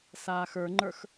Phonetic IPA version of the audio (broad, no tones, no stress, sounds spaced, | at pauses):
s aː x ə˞ ŋ͡ǃ ə˞ x